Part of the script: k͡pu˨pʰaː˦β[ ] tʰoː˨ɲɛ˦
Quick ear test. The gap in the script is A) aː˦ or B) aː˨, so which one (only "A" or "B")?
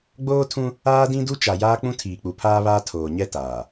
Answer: A